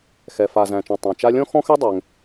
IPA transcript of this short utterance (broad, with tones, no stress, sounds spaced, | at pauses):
x ɛ˩ f a˩ z æ̃˩ t͡ʃ ɔ̃˩ tˤ ã˩ t͡ʃ a˥ lʲ ɔ̃˥ x ɔ̃˥ x ɛ˥ dˤ ɛ˩ ŋ